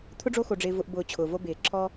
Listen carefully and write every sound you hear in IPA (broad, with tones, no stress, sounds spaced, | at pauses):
t̪ʰ ʊ˥ ɖ͡ʐ o˦ x o˨ ɖ͡ʐ ɪː˨ v ʊ˨ ʔ b ʊː˨ t͡ɕʰ ʊː˩ v o˦ b ɪː˩ ǁʰ ɔ˥